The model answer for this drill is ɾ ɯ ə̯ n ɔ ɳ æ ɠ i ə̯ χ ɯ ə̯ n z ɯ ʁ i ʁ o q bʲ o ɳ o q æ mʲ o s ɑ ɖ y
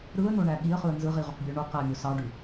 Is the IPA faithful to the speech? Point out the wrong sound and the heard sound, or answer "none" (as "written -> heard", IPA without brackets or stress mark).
ɔ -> o